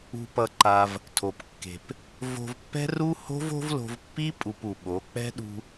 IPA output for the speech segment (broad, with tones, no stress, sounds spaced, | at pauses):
ṳ˧ p ʌ˧ ǃ a˧ v | tʰ o˨ p kː e̤˨ p | v o̤˧ v pː ɛ̤˦ r u˦ h o̤˦ v o̤˦ v l o̤˧ v pː i˦ pʼ u˧ p u˨ ɓ o˨˦ k͡p ɛ̤˦ ɗ ṳ˧